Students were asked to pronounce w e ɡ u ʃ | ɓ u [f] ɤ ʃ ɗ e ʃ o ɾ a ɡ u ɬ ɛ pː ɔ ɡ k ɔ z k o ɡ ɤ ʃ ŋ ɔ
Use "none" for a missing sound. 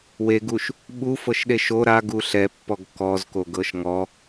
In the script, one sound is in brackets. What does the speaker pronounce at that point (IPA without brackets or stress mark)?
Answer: f